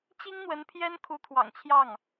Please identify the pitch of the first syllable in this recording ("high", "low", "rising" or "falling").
high